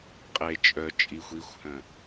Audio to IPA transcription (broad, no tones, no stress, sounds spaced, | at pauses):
qʼ e t͡ʃʼ œ t͡ʃʼ i xʷ i xʷ h œ̃